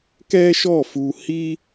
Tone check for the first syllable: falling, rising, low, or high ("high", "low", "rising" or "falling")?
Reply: high